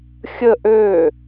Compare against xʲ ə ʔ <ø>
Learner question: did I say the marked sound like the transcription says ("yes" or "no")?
yes